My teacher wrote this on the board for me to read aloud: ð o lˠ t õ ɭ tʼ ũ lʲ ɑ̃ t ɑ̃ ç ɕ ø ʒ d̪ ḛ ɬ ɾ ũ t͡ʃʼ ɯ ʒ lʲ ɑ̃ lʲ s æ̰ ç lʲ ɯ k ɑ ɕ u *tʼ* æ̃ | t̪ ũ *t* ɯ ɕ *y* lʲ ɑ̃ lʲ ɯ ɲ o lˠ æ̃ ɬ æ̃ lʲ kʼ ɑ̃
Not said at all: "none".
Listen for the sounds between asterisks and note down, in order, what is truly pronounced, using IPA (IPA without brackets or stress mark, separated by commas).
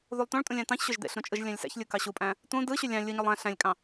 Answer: pʼ, d, y